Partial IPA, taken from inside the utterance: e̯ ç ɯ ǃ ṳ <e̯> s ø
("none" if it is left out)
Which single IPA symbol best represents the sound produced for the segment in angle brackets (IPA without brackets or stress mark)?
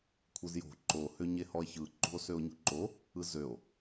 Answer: o̯